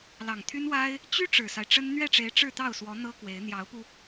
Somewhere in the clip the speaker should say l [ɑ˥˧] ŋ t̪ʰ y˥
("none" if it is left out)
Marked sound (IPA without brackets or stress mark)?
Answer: ɑ˨˩